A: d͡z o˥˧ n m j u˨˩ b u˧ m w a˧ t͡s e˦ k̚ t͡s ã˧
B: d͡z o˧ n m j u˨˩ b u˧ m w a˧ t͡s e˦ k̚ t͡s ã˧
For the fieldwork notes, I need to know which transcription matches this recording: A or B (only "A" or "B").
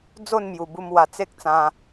A